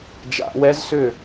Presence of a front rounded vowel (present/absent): present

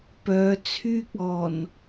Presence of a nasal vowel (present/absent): absent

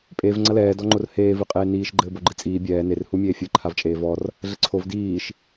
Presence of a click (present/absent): present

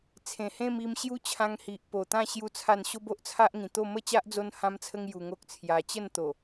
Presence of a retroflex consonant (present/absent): absent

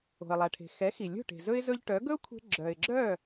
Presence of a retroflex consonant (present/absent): present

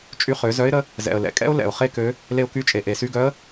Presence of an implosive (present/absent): absent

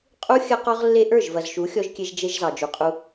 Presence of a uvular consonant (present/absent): present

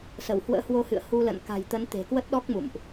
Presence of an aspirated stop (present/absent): absent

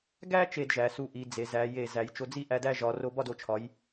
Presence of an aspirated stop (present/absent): present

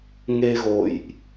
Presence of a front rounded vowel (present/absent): absent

